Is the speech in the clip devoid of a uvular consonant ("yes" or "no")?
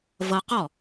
no